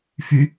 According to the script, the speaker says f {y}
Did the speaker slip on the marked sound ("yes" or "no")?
no